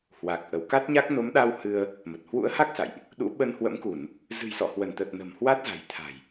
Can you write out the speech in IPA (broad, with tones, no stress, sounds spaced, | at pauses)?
h w a˨˩ k̚ ʔ ə˧˩ w k a˦˥ t̚ ɲ a˦˥ k̚ n o˨˦ m ɗ a˧ w h ɨ˧ ə̯ | m ə˨˩ t̚ h w ṵ˧˥ ə̯ h a˦˥ k̚ s a̰˧˨ j ʔ | ɗ ṵ˧˥ ɓ ə˧ n h w ə̰˧˥ m k u˧˩˨ n | z ɨ̤˨˩ j s ɔ̰˧˨ h w ə˧˩ n t̪ ə˨˩ t̚ n ə̤˨˩ m h w a˦˥ t̚ z a̤˨˩ j t̪ʰ a̤˨˩ j